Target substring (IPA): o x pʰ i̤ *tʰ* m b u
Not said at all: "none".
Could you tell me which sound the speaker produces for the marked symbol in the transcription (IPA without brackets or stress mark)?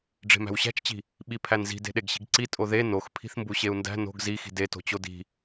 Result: θ